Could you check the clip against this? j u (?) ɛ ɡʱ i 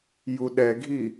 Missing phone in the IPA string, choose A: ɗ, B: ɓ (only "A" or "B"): A